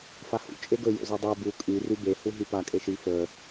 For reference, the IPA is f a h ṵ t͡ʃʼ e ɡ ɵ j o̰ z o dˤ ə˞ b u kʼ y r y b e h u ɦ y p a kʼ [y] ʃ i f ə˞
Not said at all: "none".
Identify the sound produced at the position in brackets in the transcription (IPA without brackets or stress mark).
e